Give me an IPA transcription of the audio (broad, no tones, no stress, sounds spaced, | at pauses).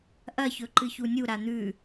ʔ ɐ ç ɵ ǃ ɨ ç u nʲ u ɾ a n̪ ʉ